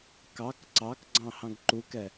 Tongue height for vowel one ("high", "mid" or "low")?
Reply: low